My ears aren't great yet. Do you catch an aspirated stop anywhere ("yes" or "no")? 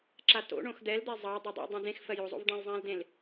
no